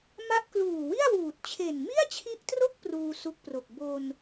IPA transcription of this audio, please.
ma˦˥ʔ kluː˨˩wi˥˩a̯wuː˨˩t̚t͡ɕʰe˨˩n mi˥˩a̯t͡ɕʰi˦˥ʔtro˥˩k̚ pruː˧su˦˥k̚pro˨˩k̚ bo˧n

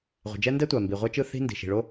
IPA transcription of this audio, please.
ʁʷe̤˩d͡ʒɛ˥ ndɛ˥tʷa˩ mbi˩ʁʷɛ˥t͡ʃɯ˥ θi̤˥ ndi̤˩ʃi̤˩ɭo˥

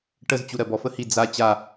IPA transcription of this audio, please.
ʈəzt͡ɕu ɾɜbɔfə hi d͡za t͡ɕa

